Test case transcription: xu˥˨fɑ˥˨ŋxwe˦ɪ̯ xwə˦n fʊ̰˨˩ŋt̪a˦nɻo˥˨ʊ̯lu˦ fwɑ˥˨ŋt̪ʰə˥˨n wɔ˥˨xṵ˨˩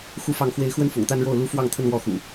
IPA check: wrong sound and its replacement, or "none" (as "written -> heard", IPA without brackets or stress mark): none